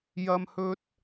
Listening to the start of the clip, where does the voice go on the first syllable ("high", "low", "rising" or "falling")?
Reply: high